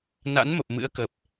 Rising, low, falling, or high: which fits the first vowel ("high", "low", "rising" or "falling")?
rising